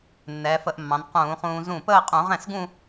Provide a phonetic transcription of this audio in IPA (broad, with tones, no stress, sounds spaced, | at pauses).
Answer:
nː ɛː˩˧ f ə˧ ʔ mː ɑ̃˩˧ n q ũː˧˩˧ χ ũː˧ z ũ˥˩ p əː˥˧ qʼ ũ˧˩˧ ʁ ɛ̃˥˩ s ɡ ũ˥˧